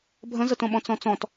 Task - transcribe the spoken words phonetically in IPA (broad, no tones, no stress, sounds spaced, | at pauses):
bʱ ə̃ z ə t õ ɓ ɔ̃ t͡s ɔ̃ t͡s ɔ̃ t